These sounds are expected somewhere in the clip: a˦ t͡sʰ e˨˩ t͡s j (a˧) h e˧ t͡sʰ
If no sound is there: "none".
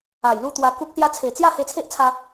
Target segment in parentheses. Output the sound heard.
a˥˧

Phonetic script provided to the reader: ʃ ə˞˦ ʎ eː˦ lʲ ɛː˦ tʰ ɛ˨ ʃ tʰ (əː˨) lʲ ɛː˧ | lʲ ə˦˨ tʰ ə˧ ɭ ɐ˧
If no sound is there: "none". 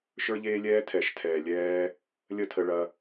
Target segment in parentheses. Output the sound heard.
ɛː˨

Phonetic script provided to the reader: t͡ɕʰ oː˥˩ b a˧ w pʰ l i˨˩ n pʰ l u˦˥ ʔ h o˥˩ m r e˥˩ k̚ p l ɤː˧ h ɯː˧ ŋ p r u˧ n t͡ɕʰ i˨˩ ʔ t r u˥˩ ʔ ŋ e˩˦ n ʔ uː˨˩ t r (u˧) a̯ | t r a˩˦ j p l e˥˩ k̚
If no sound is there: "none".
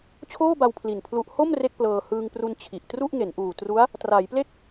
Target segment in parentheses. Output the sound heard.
u˦˥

